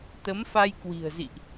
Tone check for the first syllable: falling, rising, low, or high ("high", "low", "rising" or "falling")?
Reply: rising